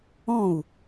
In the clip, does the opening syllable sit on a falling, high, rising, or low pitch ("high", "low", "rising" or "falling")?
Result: falling